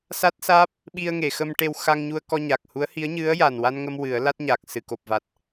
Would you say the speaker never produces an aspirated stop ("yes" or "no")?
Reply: yes